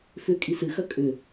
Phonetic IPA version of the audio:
f ʏ kʼ i s ɨ x ɐ kʼ ʏ

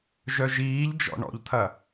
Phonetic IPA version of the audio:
ʒ œ ʒ iː ʎ d͡ʒ ɔ̰ ɳ ɔ̰ ʎ t̪ʰ ɐ

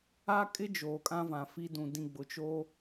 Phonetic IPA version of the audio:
a˦ kʼ ɪ˦ d͡ʒ oː˨ kʼ ã˦ v ã˨ f i˦ d ũ˨ d ĩ˦˨ ɡ͡b ʊ˨ t͡ʃ o˦

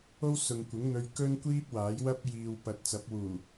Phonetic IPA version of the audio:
o˥ w s ʊ˨ ŋ kʷ ɪ˨˥ ŋ n̪ ɵ˧ ɥ k ɵ˥ n kʷ iː˥ p̚ w aː˨˥ j w ɐ˥ p̚ j iː˨ w p ɐ˨ t̚ t͡s ɐ˨˥ p̚ w uː˨˩

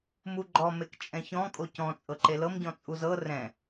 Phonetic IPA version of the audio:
m u ɡ͡ǃ ɔ m e k t͡ʃʼ ɛ̃ ç ɔ̃ kʼ o c ɔ̃ t͡sʼ ɤ ǃ e l ɤ m ɟ ɔ̃ t͡sʼ u z ɤ r ɛ̃

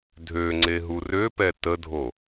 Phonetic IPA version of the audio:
dʱ ø ŋ͡ǀ e ɦ u r ø p ɛ t ə dʱ o

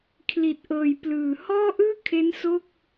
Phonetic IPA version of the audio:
kʰ l i˨˩ t̚ ʔ ɤː˨˩ j p l ɯː˨˩ h ɔː˥˩ ʔ ɯː˥˩ kʰ e˦˥ n s o˥˩ k̚

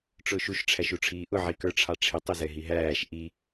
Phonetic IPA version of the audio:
ʈ͡ʂ ʊː ʃ u ʃ ʈ͡ʂʰ æ ʃ u ʈ͡ʂʰ iː ʔ ʊ ʕ i k ə˞ ʈ͡ʂʰ ɑ ʈ͡ʂʰ ɪ tˤ ʊ z ɛ ɦ i ɦ æː ʃ ʔ i

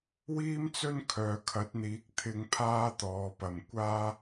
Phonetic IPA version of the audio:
w iː˥ m t͡s ɵ˥ n kʰ œː˨ kʰ ɐ˨˥ t̚ n̪ iː˨˥ k̚ t̪ʰ ɪ˧ ŋ pʰ aː˥ t̪ ɔː˨˧ p ɐ˨ m kʷ aː˥

